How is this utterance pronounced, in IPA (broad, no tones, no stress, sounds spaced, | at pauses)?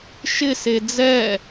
ʃ ɪ s e d͡z ɛ